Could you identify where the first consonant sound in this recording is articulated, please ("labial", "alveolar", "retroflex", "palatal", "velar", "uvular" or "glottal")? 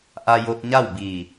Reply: glottal